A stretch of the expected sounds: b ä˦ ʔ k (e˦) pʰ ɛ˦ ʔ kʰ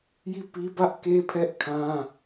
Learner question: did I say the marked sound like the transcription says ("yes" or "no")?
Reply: yes